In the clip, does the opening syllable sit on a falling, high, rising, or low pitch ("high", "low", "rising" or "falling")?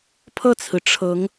falling